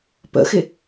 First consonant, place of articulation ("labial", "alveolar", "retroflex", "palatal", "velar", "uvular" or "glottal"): labial